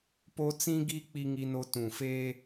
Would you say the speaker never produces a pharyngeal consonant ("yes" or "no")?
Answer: yes